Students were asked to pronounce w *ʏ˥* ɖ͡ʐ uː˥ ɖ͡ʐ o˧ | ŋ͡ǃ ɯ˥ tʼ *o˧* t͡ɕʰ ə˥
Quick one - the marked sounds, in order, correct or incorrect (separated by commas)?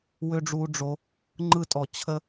correct, incorrect